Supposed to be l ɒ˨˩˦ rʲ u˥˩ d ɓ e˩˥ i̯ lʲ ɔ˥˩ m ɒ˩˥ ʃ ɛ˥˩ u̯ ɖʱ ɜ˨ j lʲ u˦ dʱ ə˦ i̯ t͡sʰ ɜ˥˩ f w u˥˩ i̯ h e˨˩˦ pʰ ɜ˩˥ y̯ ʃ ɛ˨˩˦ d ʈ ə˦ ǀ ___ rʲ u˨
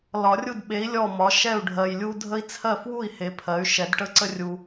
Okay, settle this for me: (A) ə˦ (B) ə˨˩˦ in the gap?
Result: A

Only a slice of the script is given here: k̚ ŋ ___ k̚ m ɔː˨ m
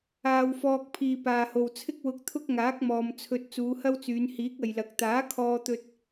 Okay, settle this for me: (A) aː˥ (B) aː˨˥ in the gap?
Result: B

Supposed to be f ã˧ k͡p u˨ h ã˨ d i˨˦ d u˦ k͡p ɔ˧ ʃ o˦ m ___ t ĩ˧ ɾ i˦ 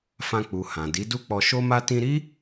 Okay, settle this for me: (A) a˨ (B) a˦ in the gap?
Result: B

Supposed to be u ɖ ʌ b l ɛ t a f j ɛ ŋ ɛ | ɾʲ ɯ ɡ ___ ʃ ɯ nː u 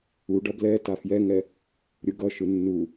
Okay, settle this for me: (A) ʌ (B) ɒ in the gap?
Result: A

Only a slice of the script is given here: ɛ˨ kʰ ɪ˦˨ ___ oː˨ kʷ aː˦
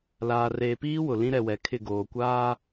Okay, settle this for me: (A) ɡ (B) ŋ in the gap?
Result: A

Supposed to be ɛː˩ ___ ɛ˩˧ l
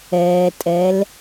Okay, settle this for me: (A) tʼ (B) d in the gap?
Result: A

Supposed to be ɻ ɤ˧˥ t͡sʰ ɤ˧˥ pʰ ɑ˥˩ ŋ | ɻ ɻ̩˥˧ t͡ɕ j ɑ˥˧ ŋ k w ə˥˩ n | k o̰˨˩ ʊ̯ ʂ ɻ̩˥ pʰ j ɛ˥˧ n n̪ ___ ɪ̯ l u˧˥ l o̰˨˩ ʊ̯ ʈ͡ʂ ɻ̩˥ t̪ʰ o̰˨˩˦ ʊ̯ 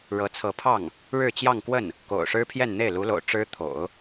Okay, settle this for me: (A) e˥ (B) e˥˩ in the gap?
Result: B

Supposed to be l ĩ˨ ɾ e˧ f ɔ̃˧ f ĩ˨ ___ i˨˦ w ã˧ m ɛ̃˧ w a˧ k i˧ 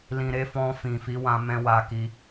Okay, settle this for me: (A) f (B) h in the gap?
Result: A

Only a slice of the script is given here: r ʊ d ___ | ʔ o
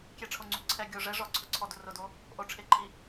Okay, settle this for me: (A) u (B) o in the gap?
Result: B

